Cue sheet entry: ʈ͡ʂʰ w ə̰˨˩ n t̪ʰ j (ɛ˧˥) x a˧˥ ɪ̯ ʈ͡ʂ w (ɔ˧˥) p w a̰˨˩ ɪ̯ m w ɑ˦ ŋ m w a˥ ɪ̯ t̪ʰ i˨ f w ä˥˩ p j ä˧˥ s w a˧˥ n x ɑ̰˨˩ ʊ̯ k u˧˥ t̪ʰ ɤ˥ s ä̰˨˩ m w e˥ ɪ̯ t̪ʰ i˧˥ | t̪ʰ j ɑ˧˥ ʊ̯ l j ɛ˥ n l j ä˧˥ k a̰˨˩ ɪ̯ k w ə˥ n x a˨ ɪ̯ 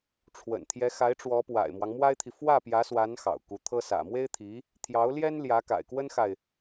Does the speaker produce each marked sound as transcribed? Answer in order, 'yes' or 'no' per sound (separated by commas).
yes, yes